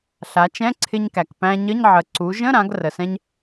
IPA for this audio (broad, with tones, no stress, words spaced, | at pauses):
ɬa˩˧t͡ʃɛ̃˧˥˧ǀʰɪ˧ɲkæ˩k pæ̃˧ɲə˧˥˧ɲʕə˩˧ ǀu˩˧ʒə̃˧˥˧ɾã˩˧ɡ rə˩sɛ̃˥ɲ